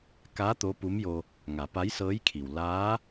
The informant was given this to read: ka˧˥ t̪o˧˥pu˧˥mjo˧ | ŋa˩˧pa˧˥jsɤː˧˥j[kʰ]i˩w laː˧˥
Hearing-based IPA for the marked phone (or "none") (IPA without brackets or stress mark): kʰ